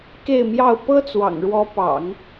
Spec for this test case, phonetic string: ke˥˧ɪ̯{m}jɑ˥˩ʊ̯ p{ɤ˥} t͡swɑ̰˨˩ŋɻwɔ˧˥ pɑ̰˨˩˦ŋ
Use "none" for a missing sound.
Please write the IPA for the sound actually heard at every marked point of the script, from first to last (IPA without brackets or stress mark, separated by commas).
m, ɤ˥